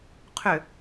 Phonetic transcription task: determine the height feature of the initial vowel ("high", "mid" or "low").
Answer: high